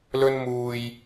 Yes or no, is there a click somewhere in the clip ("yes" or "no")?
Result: no